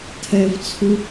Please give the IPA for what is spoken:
tʰ ɛ v t͡sʰ u

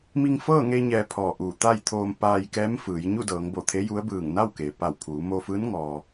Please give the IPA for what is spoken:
m i˧ ŋ f ɤː˥˨ ŋ e˧ ɲ ɛː˧ pʰ ɔː˧˩ ʔ uː˧˩ t̪ a˥˨ j t̪ʰ oː˧ m p aː˧ j k ɛː˧˥ m f ɯː˩˧ j ɲ u˥˨ d ɤː˩˧ ŋ b o˧˩ t̪ʰ e˧˥ j u˧˥ ə̯ b ɯː˧˩ ŋ n a˥˨ w k e˩ p a˧˩ w pʰ uː˩˧ m o˧ f ɯː˧˥ n ŋ ɔː˩

